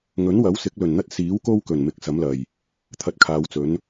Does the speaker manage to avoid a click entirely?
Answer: yes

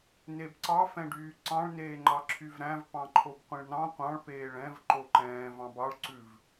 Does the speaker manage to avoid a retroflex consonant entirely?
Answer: no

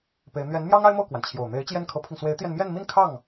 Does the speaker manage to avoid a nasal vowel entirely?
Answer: yes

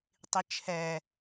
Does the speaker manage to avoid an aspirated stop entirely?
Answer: no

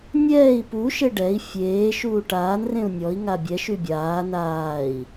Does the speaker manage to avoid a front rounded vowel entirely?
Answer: no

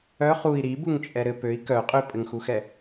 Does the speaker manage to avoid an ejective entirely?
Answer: no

